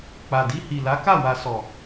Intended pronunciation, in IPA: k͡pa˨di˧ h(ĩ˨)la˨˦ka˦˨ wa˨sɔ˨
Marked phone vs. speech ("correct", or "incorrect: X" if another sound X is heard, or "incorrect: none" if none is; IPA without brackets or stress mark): incorrect: i˨